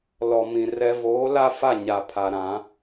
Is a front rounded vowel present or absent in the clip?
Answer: absent